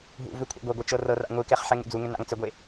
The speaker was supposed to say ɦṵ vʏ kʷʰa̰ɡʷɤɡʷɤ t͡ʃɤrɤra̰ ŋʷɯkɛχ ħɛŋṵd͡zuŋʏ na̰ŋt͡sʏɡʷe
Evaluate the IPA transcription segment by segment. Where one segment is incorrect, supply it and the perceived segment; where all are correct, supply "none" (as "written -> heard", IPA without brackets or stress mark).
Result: none